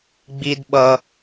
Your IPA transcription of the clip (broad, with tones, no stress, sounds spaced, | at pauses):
ɡ͡b i˦ d ɓ ʌ˦